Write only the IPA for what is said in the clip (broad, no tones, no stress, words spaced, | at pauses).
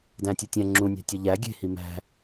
dæ̃tʲutʲæ̃ ŋ͡ǁũnʲæ̤ tʲɒʎæ ɡʲe̤hi mæ̤